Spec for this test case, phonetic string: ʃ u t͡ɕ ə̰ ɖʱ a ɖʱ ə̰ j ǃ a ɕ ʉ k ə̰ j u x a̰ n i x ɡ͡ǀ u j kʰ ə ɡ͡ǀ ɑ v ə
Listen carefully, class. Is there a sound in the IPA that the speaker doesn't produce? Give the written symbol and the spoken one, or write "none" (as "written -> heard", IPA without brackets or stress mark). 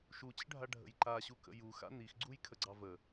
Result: ʉ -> u